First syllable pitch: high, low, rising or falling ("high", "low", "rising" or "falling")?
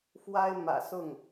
high